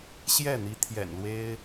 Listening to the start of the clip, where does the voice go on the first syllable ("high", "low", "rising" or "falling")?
falling